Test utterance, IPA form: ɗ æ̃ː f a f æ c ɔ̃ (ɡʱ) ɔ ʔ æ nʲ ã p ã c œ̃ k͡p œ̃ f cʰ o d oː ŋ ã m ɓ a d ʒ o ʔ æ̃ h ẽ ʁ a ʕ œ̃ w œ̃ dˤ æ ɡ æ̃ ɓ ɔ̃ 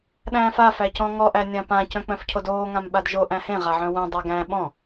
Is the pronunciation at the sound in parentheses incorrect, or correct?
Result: incorrect